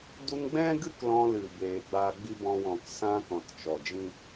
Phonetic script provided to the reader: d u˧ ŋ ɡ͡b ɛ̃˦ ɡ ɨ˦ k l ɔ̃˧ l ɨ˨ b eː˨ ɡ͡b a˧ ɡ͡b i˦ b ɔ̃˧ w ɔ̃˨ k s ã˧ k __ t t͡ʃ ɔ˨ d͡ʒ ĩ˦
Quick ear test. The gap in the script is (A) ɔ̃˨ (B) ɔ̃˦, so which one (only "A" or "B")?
A